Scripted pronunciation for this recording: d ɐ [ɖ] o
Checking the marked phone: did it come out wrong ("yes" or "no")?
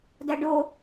no